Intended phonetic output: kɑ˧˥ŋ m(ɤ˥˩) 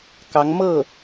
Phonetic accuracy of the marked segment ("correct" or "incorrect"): correct